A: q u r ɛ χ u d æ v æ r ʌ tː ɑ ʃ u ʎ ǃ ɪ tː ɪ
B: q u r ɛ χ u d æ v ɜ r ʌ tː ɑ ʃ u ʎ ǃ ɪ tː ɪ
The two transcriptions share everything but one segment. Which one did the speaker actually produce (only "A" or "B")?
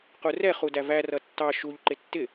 A